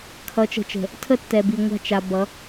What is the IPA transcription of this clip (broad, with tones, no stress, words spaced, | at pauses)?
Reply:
kʰʌ˨˦t͡ʃə̤˨t͡ʃə̤˨ | tʰə˦tːɛ˨bi˨ ŋʷa̤˦˨t͡ʃa˨ bʌ˨˦